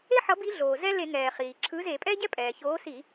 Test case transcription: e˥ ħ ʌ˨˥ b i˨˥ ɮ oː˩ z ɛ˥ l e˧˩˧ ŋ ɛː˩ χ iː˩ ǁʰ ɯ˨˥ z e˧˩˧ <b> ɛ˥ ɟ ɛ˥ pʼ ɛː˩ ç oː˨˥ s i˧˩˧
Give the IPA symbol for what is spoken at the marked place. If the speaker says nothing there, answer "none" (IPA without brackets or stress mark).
pʼ